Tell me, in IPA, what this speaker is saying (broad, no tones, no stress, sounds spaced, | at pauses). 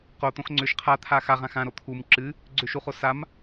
q o t̪ õ x ŋ͡ǀ ʏ ʃ qʰ a t̪ʰ a x a ʁ ã x ã ɾ o t̪ʰ u m ǁ ɨ | ɡ͡ǀ ʏ ʃ u χ o s a m